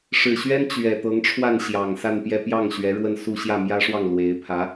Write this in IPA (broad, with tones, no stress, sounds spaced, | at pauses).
ʂ ɻ̩˨˩ ɕ ɥ ɛ˥ n t͡ɕ ɥ ɛ˨˩ t̪ ɤ˧˥ ŋ ʈ͡ʂʰ w a˥˩ n ɕ j ɑ˨˩ ŋ s a˥˧ n p j ɛ˥˧ p j ɑ˥˩ ŋ ɕ ɥ ɛ˧˥ ɻ w ə˥˧ n s u˥˧ ɕ j ä˥˩ m j ä˥ ʂ w ɑ˥˩ ŋ l w e˧˥ ɪ̯ pʰ ä˧˥